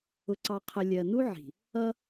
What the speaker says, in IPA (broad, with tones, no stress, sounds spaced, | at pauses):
ʊ˨ ǀ ɑ˨ qʰ ə˨ lʲ ɜ˨ n u˦ ʕ i̤˨ | ʌ˦